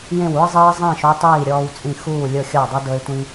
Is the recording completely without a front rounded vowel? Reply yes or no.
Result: yes